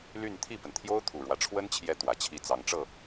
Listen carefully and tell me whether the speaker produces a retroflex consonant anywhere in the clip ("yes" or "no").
yes